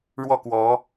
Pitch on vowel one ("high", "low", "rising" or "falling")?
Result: falling